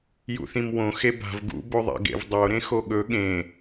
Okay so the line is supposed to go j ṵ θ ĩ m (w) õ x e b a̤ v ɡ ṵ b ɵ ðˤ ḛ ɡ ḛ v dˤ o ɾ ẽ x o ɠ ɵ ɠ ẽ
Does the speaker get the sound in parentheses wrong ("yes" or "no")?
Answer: no